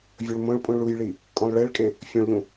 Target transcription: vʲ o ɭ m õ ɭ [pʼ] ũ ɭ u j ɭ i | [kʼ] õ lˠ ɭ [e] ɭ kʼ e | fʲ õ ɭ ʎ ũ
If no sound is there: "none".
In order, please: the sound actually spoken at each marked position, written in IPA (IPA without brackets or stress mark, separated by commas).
pʼ, kʼ, e